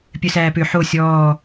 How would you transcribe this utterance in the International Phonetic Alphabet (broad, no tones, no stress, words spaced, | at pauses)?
pʲœsæːpø ħo sʲɔː